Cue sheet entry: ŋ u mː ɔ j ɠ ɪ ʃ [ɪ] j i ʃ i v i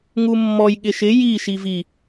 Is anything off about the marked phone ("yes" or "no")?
no